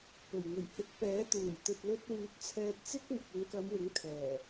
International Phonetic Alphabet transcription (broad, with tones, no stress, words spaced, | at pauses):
pɵ˨˩ɥŋɵ˨˩ɥhɪ˨˥k̚pɛː˨˥ t̪uː˨˩jt̪ɵ˨t̚ lɵ˧t̚wyː˨˥t̚ t͡sʰɛː˧t̚t͡sɪ˥k̚mʊ˨k̚ ɪ˨˧ŋkɐ˨˧mwɪ˨˥ŋ t̪ʰɛː˨˩